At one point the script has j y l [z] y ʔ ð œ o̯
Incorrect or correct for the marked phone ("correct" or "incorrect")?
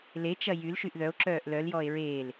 incorrect